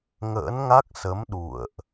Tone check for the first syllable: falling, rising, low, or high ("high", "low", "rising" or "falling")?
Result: rising